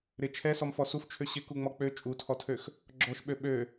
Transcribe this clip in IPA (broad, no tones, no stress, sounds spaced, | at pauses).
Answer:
ɾ ɪ t͡ʃʰ ɛ s ɔ m f ɔ s u f t͡ʃʰ ø ɕ ɪ k u ŋ͡m ɔ k͡p ø t͡ʃʼ u tʰ ɔ tʰ ø x | ɡ͡ǁ ɔ ʃ ɓ ø ɓ ø